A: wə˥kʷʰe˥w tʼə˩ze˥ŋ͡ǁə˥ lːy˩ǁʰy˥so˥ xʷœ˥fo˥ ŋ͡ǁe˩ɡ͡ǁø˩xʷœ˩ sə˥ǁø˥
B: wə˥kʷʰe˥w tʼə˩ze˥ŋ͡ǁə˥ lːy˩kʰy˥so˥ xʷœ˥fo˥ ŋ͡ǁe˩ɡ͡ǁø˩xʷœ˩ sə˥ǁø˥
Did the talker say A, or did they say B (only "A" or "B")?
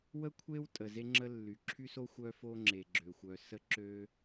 A